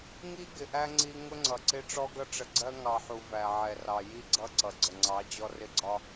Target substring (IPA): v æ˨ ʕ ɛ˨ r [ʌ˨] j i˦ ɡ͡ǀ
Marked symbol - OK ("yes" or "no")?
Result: no